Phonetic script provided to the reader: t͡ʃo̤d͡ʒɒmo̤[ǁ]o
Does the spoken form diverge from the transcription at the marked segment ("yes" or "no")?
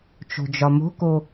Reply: yes